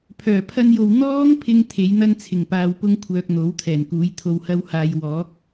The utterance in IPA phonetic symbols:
pʰ œː˨˩ pʰ ɐ˧ n j o˨ w n̪ ɔː˥ ŋ pʰ ɪ˧ ŋ t̪ʰ e˨˥ j n̪ ɐ˥ n t͡sʰ ɪ˨˩ ŋ p aː˧ w p ʊ˥ ŋ kʷʰ œː˨ k̚ n̪ o˨˥ w t̪ʰ ɛː˨˩ n k uː˨˥ j t̪ʰ o˧ w h ɐ˥ w h aː˧ j w ɔː˨˥ k̚

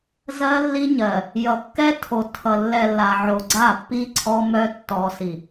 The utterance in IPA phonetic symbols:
z ɜ˦ lː i˦ ɲ ɜ˨ | j ʌ˨ kː ɛ˦ tʰ o˨ tʰ ʌ˨ lː ɛ˨ lː a˨ ʕ o˨ ɡ͡ǀ a˦˨ pː i˦ ǀʰ ɔ˦ m œ˦ tː ɔ˨ s i˨

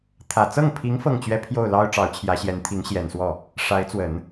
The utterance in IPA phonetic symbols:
t̪ʰ ä˨˩ t͡s ɤ˥˩ ŋ pʰ i˧˥ ŋ f ɤ˥˩ ŋ t͡ɕ ɥ ɛ˥ pʰ j o˥˩ ʊ̯ l ɑ˥ ʊ̯ ʈ͡ʂ ɑ˧˥ ʊ̯ t͡ɕʰ j ä˧˥ ɕ j ɛ˧˥ n t̪ʰ i˧˥ ŋ ɕ j ɛ˨˩ n s w ɔ˥˩ | ʂ a˧˥ ɪ̯ t͡s w ə˨˩˦ n

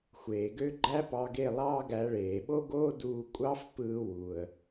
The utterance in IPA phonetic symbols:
xʷ eː˨ ɡ ø˦ ɡ͡ǃ æ˦ p ɑ˧ ɡ e˦˨ lˠ ɑː˦ ɡ æ˨˦ ɭ eː˨ ɓ o˦ ɡ oː˦ d uː˧ kʷʼ ɑ˦ f p ɯː˧ w u˨ ə̯

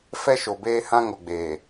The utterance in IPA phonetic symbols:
f ɛ˦ ʃ o˨ b eː˦ h ã˦ ŋ o˨ ɡ͡b eː˨

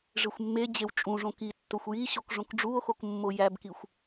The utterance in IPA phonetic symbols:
ʐ e xʷ mː e d͡ʑ e w t͡ʃʼ ũ ʐ õ k i tː o xʷ j i ɕ o k ʐ õ k ɖ͡ʐ u o̯ x o k mː o j æ b k i xʷ

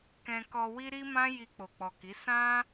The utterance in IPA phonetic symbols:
k ɛ̃˧ k ɔ˧ w i˦ ɾ i˦ m ã˦ j i˧ k͡p o˨ k͡p ɔ˨ k i˨˦ s ã˦

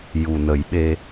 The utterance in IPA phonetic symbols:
j u˨˩ n ə˨˩˦ j ɓ e˧

